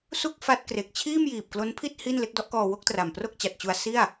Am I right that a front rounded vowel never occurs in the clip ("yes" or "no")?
yes